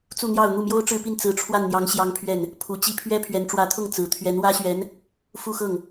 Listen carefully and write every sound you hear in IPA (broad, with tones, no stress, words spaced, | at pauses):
t͡su˥˧n̪jɑ˥˧ʊ̯ n̪u˥˩mjo˥ʊ̯ʈ͡ʂɻ̩˥˧pi˥˩n t͡sɹ̩˧˥ʈ͡ʂʰwa˥˩nn̪jɑ˧˥ŋ ɕjɑ˥ŋpʰɥɛ˥˩n | pʰu˨˩ t͡ɕi˥˩ pʰɥɛ˥ pʰɥɛ˧˥nʈ͡ʂwä˧˥t̪ʰʊ˥˩ŋ t͡sɹ̩˨˩ t̪ʰɥɛ˧˥nwä˥ɕɥɛ˧˥n | fu˥˧xɤ˥˩ŋ